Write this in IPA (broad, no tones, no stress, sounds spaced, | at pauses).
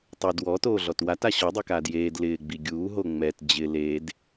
tˤ u d w ɔ t oː ɮ ɔ t w a t a ɕ ɔ dˤ i k aː d j eː d l ɪː ɡ͡b i ɡʲ uː ɦ o ŋ͡m ɛ t d͡ʑ ɪ l eː d